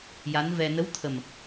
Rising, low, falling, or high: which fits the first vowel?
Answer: rising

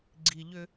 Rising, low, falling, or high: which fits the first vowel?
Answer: low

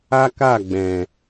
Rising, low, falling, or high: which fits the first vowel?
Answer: high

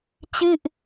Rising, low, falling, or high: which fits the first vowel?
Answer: falling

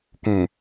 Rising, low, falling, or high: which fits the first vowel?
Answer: low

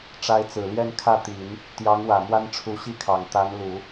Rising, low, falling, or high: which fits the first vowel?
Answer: rising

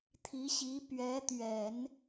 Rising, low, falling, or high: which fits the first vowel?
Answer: rising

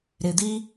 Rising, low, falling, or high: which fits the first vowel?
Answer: low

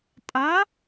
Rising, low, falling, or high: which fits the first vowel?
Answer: rising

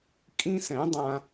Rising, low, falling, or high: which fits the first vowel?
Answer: high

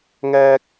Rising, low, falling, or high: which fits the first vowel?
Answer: high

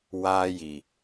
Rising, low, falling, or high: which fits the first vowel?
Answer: high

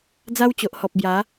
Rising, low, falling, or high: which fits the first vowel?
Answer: high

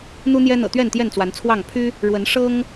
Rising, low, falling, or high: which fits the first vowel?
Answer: high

